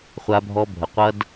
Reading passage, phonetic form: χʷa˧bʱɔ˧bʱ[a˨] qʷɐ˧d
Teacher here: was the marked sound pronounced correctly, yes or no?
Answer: no